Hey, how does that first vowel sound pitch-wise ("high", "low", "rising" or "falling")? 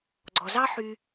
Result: low